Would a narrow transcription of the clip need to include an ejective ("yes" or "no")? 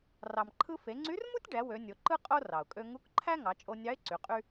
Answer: yes